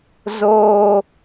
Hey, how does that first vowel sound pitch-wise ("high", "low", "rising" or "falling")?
high